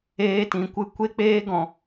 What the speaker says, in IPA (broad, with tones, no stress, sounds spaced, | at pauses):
eː˧ t ĩ˨ kʷ ɨ˧ kʷ e˦ k͡p eː˦ ɡ ɔ̃˨